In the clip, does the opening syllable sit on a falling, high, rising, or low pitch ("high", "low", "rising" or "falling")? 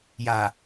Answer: low